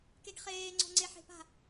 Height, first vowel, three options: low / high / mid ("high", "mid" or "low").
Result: mid